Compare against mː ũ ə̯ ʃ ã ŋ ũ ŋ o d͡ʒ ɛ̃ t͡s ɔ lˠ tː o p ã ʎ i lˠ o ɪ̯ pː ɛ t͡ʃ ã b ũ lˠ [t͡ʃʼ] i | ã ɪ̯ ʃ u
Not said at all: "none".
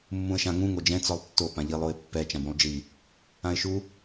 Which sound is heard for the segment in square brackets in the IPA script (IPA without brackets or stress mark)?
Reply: d͡ʒ